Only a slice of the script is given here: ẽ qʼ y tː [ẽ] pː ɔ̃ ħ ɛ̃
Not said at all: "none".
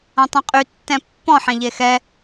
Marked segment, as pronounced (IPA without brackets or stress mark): ɛ̃